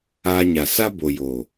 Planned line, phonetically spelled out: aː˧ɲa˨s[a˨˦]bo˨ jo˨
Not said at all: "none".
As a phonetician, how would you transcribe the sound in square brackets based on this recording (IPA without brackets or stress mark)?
a˦